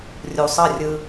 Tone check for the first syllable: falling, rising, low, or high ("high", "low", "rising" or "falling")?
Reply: low